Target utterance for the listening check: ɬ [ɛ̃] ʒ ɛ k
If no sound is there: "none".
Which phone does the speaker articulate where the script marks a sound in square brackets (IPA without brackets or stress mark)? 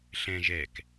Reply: ɛ̃